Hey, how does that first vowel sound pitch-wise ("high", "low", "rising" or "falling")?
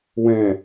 low